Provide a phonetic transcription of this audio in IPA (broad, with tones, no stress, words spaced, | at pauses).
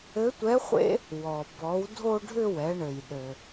ɘ˧˥tʷɛ˧˥χʷḛ˥ | wɔ˩ bɔ˩˧wdʱo˧ɖʱʏ˧ wɛ˩˧ɳɘ˩j ɗɘ˩